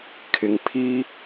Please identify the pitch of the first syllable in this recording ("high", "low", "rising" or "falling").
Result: low